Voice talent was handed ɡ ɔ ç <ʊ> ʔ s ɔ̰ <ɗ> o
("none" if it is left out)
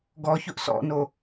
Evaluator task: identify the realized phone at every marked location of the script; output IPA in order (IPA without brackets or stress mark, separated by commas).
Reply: ʊ, n